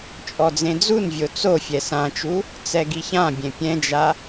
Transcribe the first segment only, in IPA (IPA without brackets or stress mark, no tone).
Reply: t͡ʃʼ